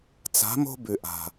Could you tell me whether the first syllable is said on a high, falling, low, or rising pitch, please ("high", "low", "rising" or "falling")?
rising